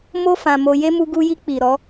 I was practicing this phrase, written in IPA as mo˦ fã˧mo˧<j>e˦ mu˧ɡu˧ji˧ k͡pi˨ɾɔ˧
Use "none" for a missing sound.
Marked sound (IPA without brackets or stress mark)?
j